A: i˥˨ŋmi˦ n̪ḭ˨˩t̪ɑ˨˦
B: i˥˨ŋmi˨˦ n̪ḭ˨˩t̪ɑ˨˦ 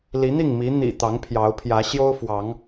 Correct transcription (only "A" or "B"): B